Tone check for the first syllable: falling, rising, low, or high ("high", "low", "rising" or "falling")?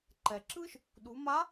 low